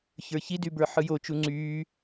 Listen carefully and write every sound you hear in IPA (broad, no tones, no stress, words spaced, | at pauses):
çə˞çidybə˞ ħɯjo t͡ʃuŋ͡ǀyː